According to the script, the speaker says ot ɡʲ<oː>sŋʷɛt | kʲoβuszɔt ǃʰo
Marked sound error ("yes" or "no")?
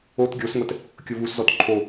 yes